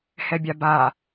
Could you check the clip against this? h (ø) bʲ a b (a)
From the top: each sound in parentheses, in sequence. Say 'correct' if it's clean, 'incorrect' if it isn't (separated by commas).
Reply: incorrect, correct